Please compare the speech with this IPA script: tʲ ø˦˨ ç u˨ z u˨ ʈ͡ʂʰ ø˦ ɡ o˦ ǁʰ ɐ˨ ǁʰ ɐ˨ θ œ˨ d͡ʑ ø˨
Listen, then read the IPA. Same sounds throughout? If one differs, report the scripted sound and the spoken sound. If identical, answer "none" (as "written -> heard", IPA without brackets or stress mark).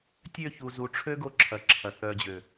none